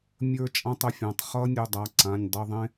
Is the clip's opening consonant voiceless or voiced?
voiced